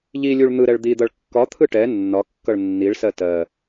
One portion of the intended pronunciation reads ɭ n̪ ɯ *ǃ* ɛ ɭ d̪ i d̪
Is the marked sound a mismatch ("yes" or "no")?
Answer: yes